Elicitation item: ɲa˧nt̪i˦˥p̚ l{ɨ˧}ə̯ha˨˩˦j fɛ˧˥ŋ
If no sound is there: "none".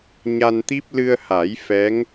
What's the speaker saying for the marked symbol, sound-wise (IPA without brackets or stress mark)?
ɨ˧